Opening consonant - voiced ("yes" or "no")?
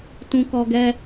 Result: no